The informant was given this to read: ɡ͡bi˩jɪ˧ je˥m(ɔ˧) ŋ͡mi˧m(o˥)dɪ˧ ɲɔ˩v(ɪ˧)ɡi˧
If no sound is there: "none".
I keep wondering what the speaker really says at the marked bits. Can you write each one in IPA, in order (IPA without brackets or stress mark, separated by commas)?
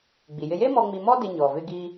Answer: ɔ˧, ɔ˥, ɪ˧